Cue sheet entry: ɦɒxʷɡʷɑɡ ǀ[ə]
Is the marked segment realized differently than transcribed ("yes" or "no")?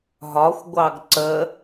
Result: no